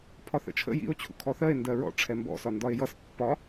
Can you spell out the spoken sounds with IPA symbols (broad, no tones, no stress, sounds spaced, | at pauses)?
pʰ ɒ θ ə̰ t͡ʃʰ ə̰ j ḭ o̯ t͡ɕʰ ṵ kʰ ɔ θ ɜ e̯ n d ɜ ɹ ɔ̰ ʈ͡ʂʰ ɛ m b ɔ̰ s ɒ n d ɒ e̯ j ʌ s pː ɒ